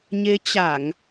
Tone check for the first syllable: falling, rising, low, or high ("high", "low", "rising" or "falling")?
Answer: rising